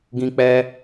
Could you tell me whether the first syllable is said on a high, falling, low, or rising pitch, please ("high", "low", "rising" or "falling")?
high